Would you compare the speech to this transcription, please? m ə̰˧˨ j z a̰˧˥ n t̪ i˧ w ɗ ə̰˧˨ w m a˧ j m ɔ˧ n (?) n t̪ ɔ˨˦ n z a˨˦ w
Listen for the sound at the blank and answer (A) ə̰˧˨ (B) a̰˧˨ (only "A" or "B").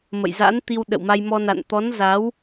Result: B